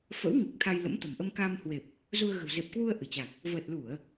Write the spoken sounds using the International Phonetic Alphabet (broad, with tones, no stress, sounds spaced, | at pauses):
f ə̰˧˥ w ŋ i˨˩ k̚ t̪ʰ a˧ j l ə̰˧˥ m t̪ ə̤˨˩ m ʔ ə˧ m k aː˧ m h w e˨˩ p̚ | z u˧ ə̯ ɣ ə̤˨˩ w z e˨˩ p̚ k w u˧ ə̯ ʔ ɨ˧˩ t͡ɕ a˨˩ k̚ | v əː˨˩ t̚ l u˧˩˨ ə̯